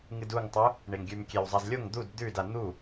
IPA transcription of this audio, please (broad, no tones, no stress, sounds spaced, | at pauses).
ŋ ɨ d u ŋ tˤ u | ɳ e ŋ ɡʲ ʉ m kʲ e w zˤ a z lʲ o ŋ d̪ u d d̪ ʉ d a n̪ u